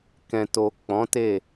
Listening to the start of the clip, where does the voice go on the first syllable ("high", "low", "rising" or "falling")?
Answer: low